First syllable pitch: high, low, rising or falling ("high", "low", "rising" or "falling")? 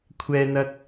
high